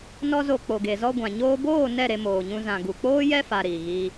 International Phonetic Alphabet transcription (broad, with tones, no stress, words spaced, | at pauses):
nɔ˧zo˨ k͡po˨ɡe˨zɔ˧ ɡʷã˨ɲoː˧ boː˦˨ nɛ˦˨ ɾe˧moː˨ɲũ˧ zã˨ɡu˨k͡poː˦jɛ˦ fa˧ɾiː˨ɣiː˧